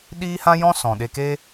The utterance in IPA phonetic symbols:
ɗiː˦hã˦jɔ̃˦ sɔ̃˨ɗe˧ke˦

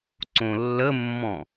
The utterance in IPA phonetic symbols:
ǀõlːəmːɔ̃

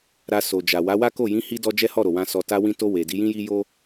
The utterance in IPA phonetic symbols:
ɾa˧so˨d͡ʒa˨ wa˨˦wa˦ko˦˨ jĩ˨˦hi˧dɔ˧ d͡ʒɛ˦hɔ˦˨ɾo˨wã˧ sɔ˨ta˧wĩ˧to˧ we˨ di˨˦jĩ˦ji˦ jo˦

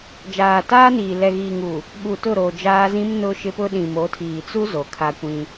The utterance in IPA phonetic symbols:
d͡ʒaː˨taː˦niː˨ lɛ˨ɣiː˨ŋu˨ | ɓu˨tʊ˦˨ɾo˨ d͡ʒaː˦zĩ˦m nʊ˦ʃɪ˦pʊ˦ ɗĩ˨mo˨˦tʰiː˨t͡su˦ zo˨kʰa˦kʷĩ˦

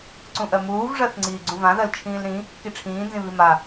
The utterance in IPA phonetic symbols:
ǀũʔɜmuːv ʐɜθŋ͡ǀiːɡ͡ǀũvã ðɜlt͡ʃʰĩːlɾĩ | kiʈ͡ʂʰĩː nzĩβima

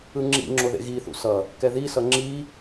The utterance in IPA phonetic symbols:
ɯŋ͡ǁḭŋ͡ǁo ðḛɣiθṵ sʌ | kɛðisʌ ŋ͡ǁi

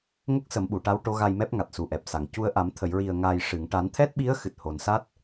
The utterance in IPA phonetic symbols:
ŋə˦˥k̚sə˨˩˦mɓu˨˩˨ʈa˧˥w ʈo˧˥ɣa˧jmɛ˦˥p̚ŋa˨˩t̚ su˨˩ʔɛ˨˩p̚sa˨˩˨ŋ cu˧ə̯ ʔa˨˩˦m t̪ʰə˨˩˨jɹi˨˩ə̯ŋaː˨˩j ʂɨ˨˩˨ŋʈa˨˩˦nt̪ʰɛ˦˥t̚ɓi˧˥ə̯ xɨ˨˩t̚ho˨˩˨nsa˦˥t̚

